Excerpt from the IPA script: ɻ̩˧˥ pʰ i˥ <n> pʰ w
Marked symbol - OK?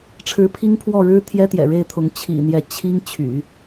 no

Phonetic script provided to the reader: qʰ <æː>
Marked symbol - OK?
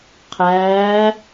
yes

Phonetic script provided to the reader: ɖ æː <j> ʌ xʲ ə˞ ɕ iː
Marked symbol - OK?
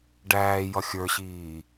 yes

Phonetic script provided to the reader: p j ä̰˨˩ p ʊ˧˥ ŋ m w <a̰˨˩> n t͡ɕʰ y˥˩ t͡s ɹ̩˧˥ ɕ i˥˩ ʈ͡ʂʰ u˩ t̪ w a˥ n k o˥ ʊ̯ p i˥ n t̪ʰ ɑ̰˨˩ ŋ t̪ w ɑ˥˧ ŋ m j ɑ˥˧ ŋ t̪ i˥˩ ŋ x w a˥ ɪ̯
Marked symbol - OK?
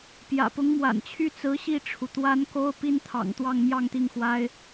yes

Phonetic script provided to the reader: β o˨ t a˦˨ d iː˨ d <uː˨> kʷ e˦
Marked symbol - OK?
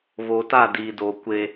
no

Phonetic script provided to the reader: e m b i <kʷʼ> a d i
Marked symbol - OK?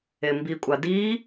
yes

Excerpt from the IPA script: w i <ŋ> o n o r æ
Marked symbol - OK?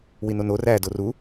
no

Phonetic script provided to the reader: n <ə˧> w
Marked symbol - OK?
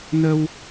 yes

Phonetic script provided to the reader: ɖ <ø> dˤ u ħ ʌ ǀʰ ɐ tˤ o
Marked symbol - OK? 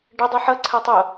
no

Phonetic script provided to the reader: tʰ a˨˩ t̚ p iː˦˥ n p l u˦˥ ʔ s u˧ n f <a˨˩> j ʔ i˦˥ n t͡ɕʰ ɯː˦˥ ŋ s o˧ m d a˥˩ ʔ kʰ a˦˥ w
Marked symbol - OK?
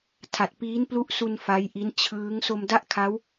no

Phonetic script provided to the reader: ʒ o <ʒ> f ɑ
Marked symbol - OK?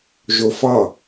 no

